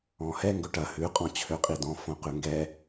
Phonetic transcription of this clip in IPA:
ɔ̃ h ɛ ŋ ɡ ɵ ʈ ɐ h ʉ qʼ ɔ̃ t͡ɕʰ ø qʼ i d ɔ̃ f õ q ʉ ŋ ɡ ɛ

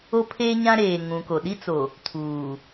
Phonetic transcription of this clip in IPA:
o˦ pʰ e˦ ɲ ã˦ ɾ eː˨ ŋ ũ˨ k o˨ ɗ i˦ t͡s o˨ | tʰ uː˨

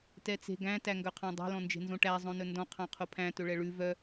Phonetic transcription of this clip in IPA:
t ɛ t͡s e̤ ɡ æ̃ t æ ŋ ɡ œ qʰ ɑ̃ dˤ e̤ l ɔ̃ n d͡ʒ e̤ n z õ ʈ æ zˤ õ n ɵ n d ɔ̃ qʰ ɑ̃ qʰ o pʰ æ̃ t ɵ ɭ ɛ ɭ ʉ v œ

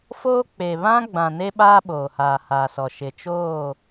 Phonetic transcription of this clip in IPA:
f oː˦ k͡p e˨ β ã˦ ɡ͡b ã˨ n e˦ ɓ aː˦ ɓ oː˨ h aː˨ h aː˨ s ɔ˨ ʃ ɪ˨ t͡ʃ oː˦˨

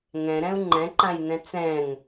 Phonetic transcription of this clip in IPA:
ŋ ɛ̃ ɾ ɛ̃ u̯ ŋ͡ǃ ɛ̃ ǃ ã j n ɛ̃ t͡s ɛ̃ ŋ

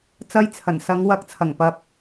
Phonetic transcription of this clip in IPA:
t͡s ɐ˧ j t͡sʰ ɐ˨˩ n s ɐ˨˧ ŋ w ɐ˨˥ k̚ t͡sʰ ɐ˨˩ ŋ p ɐ˨ p̚

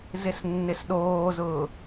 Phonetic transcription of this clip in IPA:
z ɪ s nː ɪ s ɗ oː z ʊː

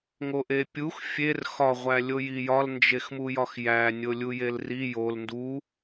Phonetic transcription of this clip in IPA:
ŋ o ʔ e pʲ u x fʲ e r x ɒ ʁʷ æ lʲ o j i j ɒ l n d͡ʒ e x m u j ɒ x j æ nʲ o lʲ u j e l r i j o l n d u

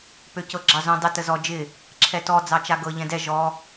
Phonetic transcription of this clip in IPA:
p ø c ɤ ɡ͡ǁ ɑ z õ dˤ ə t ə z ɔ d͡ʒ ɪ | ǁʰ ɛ t ɔ d͡z ɑ t͡ʃ a ɡ ɤ ʎ ɛ̃ d ɛ ʒ ɔ

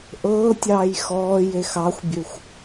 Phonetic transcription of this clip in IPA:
ʔ ɤː tʲ ɑː j x ɔː j e x ɑ xʷ bʲ ø xʷ

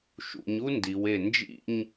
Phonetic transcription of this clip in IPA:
ʃ ṵ˩˧ ɲ u˥ n d i˩˧ w e˧˩ n d͡ʒ ḭ˥˧ ɲ

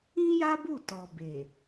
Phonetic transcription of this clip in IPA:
ĩ˦ j a˦ b u˦˨ t ɔ˨ b e˨

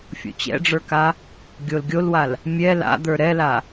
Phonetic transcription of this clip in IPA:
fʲ o̰ t͡ɕ ɛ̰ ɖ͡ʐ ə˞ k a | ɡʲ o l ɡʲ o l w a l | mʲ ɛ l a̰ d̪ ə˞ ɾ ɛ l a

